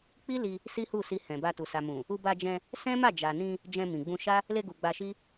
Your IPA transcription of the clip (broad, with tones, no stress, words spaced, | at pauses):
k͡pi˦li˧ | si˦hu˦˨si˧ hɛ̃˨ba˧tu˨ sa˨mũ˨ | u˧ba˧d͡ʒɛ̃˧ | sɛ̃˦ ma˦˨d͡ʒa˨nĩ˧ | d͡ʒɛ̃˧mĩ˨ɡ͡bũ˧ ʃa˦ | le˧ɡu˨ ɡ͡ba˧ʃi˦